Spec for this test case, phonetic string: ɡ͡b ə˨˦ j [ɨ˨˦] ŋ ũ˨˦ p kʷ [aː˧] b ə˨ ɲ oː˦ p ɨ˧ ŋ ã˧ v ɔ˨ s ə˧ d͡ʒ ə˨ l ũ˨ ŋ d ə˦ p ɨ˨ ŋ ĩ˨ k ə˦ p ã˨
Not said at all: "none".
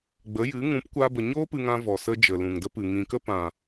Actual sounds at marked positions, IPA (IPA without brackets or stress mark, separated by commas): ɨ˨˦, aː˧